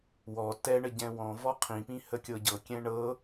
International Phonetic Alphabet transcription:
wɔ tɛɳə ɟɛ̃wɔ̃vɔ qʰĩpĩ həkʲɤɟɤkʲɛ̃ ɳɤ

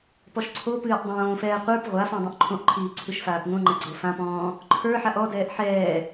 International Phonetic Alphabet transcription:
pɔʃǀʰopɨːʔ dˤõːfɛː qʷə˞p ʁʷafɔ̃ dˤõʔǃʰõʔǃʰiː ǀʰɨʃfaːpŋõŋ͡ǃɛ ɡ͡ǀofãpɔ̃ː | ǃʰə˞ ħaʔɔdɛːʔ ħɛː

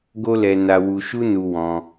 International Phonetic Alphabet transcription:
ɡo˦lɛ˧ na˧wu˧ʃu˦nu˧ wɔ̃˧

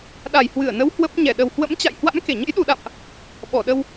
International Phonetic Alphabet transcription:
ɗa˨˩jhwɨ˧˩ə̯nə˨˦w hwə˦˥p̚ ɲɛ˧˩ɗə˨˩whwə̰˧˥m t͡ɕa̰˧˨jhwa̰˧˥m ke˧˩ɲə̰˧˥j ɗu˨˩ɗa̰˧˨mʔ | ɓɔ˧˩ɗə˧w

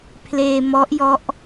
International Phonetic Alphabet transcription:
pʰleː˧mɔ˦˥ʔjɔ˦˥ʔ

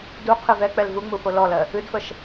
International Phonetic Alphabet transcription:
duqʰɨ vɛk͡pɛl vuŋ͡mufo lɔlɜ | ɨdfəʃ

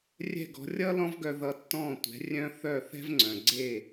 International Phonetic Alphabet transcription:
rʲɛ̤˥˩ɡɔ̤˩˥ rʲʌ˥ lɔ̃˥vɡœ˧ ðʌ˧tːɔ̃ː˥˩ tʷɛ̤˩˥ rʲœ̃˥ θœ˥˩ θɛ̤˥vŋ͡ǀœ̃˩ ɡ͡ǀe˥˩

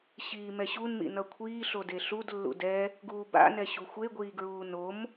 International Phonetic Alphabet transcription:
ɕiːmɛɕun mḭnʌkʷʰiːɬo deɬud lːṵdɛ | ɡuːba̰nɛ ɕuxʷeɡʷiːɡɹuː nom

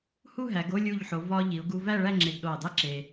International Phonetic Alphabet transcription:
hu˥˧ ɦæ˩˧ɡo˥˧lʲu˧˩ʎħo˩˧ vɒ˧ʎi˩˧ʊ̯ ɡu˧ væ˥˧ɭæ˥˧ ŋ͡ǁe˧ɡɗo˧˩ə̯dˤe˥ǁe˧

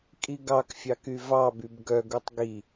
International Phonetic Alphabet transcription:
kʼiɡɑkfʲɑk yvɑbyb ɡœɡutˤ ɡi

